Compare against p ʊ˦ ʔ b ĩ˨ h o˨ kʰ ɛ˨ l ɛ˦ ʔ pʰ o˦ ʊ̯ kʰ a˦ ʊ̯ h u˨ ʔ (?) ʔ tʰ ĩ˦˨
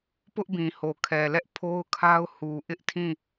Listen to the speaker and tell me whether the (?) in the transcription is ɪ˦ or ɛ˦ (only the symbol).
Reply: ɪ˦